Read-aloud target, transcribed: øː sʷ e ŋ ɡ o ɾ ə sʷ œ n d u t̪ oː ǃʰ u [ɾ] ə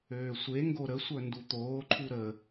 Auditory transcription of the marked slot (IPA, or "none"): ɾ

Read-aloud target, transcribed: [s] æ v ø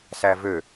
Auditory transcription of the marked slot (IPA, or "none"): s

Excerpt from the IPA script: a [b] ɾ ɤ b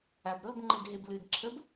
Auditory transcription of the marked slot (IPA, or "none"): b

